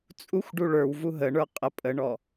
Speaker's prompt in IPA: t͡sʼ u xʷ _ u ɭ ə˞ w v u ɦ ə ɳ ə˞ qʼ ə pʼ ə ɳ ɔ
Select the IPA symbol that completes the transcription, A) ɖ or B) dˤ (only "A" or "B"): A